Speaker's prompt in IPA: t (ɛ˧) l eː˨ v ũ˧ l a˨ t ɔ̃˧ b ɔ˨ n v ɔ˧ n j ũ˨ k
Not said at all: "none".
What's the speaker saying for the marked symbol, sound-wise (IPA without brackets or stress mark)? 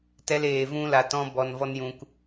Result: ɛ˧